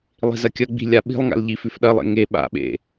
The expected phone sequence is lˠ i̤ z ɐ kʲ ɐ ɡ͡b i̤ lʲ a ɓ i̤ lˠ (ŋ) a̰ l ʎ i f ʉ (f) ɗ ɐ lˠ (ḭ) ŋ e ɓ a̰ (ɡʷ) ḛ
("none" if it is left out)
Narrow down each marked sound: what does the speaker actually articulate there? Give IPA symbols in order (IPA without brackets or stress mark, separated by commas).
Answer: ŋ, f, ḛ, ɓ